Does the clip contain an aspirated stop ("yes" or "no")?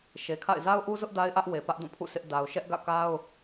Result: yes